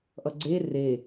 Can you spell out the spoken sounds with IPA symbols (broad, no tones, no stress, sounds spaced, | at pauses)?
ʔ ʌ ɡ͡ǀ e r e